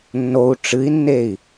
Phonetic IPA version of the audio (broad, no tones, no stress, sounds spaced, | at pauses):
nː o u̯ ʈ͡ʂ ɨ i̯ nː e i̯